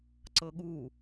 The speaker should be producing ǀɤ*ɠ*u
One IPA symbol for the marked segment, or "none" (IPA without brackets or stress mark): ɠ